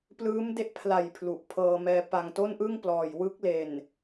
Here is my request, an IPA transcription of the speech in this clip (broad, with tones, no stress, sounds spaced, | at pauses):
p l ɯː˦˥ m d e˦˥ ʔ pʰ l a˨˩ j pʰ l u˨˩ ʔ pʰ ɤː˧ m ɛː˧ p a˨˩ ŋ t o˥˩ n ʔ ɯ˥˩ ŋ p l ɔː˨˩ j w ɯ˦˥ k̚ l e˨˩ n